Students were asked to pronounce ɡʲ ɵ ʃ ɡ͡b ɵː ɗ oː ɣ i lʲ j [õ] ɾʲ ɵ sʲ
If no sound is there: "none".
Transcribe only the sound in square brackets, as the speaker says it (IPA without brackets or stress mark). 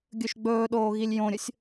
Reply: õ